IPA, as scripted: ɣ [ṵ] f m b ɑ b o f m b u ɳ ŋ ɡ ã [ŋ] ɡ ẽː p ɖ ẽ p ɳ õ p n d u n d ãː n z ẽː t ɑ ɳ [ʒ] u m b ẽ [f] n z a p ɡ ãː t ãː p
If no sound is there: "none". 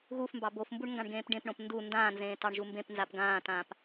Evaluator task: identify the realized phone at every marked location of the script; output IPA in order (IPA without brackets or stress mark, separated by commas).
u, ɳ, ʒ, p